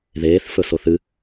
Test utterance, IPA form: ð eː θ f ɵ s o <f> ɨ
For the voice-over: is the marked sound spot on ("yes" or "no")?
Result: no